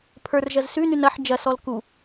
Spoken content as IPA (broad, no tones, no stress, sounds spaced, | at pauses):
pʰ ə˞ r ʒ ɐ z s ʉ n ʉ n ɐ ħ d͡ʒ ɐ s ɔ l k u